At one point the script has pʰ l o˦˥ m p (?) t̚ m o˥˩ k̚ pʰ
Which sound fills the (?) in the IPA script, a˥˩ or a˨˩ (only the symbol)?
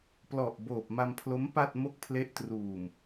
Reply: a˥˩